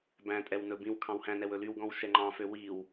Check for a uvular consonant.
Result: absent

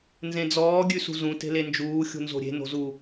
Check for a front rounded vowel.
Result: absent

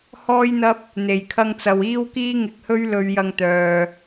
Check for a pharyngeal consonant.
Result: absent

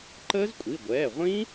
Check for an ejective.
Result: present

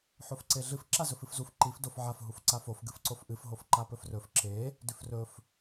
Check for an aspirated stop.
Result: absent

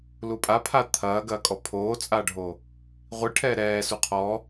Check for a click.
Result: absent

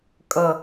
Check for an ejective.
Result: present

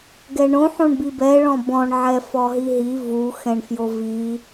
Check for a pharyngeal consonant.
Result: present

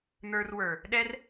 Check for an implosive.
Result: present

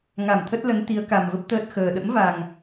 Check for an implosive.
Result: present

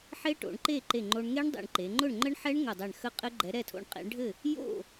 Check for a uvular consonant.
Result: present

